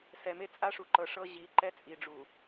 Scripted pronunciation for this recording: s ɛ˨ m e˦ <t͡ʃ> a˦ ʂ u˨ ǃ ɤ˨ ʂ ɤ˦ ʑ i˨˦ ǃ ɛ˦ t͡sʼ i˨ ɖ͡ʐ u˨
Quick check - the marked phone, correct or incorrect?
incorrect: t͡sʼ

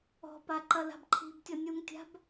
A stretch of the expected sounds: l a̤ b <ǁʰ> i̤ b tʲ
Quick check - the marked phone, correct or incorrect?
incorrect: ǃʰ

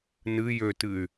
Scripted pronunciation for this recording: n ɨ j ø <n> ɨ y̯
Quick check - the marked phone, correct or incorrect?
incorrect: t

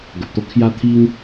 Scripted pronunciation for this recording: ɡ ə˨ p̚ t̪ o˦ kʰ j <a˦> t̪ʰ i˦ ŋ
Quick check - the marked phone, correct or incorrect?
correct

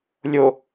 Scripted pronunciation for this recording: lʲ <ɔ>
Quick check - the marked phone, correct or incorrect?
incorrect: o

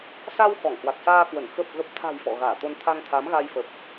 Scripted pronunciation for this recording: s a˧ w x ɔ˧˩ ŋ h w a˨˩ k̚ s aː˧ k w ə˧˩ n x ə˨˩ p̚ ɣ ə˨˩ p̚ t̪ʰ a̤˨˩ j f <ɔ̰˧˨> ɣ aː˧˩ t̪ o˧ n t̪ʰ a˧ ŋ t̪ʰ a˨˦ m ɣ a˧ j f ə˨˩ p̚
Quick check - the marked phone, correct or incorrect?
correct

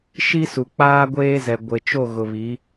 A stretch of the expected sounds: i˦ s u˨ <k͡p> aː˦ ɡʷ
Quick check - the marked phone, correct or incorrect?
correct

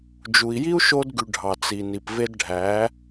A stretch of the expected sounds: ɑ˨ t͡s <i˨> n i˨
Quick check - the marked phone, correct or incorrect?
correct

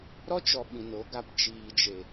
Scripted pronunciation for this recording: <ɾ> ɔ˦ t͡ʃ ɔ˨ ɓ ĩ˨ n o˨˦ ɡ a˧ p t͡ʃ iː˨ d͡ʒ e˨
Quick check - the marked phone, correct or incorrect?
correct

